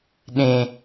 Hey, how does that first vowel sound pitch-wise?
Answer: low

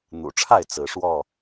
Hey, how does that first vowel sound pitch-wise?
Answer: low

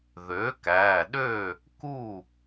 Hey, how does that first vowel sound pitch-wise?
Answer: rising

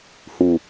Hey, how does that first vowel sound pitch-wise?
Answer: low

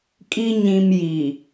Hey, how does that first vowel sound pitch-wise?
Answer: high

